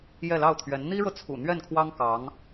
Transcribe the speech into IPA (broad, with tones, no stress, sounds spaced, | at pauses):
j ɛ˥˧ l ɑ˥˩ ʊ̯ t̪ʰ ɥ ɛ˧˥ n n̪ i˥ ɻ ɤ˨ t͡sʰ ṵ˨˩ n̪ ɥ ɛ˥˩ n kʰ w ɑ˥ ŋ k ɑ˧˥ ŋ